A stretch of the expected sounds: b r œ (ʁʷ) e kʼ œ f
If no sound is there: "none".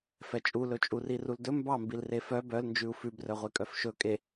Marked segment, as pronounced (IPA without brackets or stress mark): ʁʷ